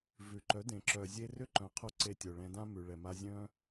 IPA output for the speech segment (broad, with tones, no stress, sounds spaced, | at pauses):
v ʉ˨ ǃ œ˨˦ d ẽ˨ ǁ œ˨ zʲ e˧ r ʏ˦ ǃ œ̃˨˦ qʰ o˧ ǀ e˧ tʲ o˨ ɭ ɛ̃˧ d ã˦ m ʉ˨ ɭ ɛ˨ m a˧ zʲ œ̃˧